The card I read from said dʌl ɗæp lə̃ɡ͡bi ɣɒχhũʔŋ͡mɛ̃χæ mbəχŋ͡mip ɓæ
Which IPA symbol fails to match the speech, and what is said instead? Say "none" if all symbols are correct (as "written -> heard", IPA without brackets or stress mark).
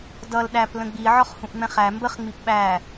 ɣ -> ʕ